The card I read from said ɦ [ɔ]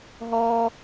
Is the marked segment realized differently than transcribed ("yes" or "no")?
no